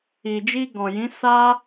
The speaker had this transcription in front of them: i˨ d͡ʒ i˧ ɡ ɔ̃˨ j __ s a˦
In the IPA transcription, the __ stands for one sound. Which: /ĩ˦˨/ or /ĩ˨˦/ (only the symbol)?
ĩ˨˦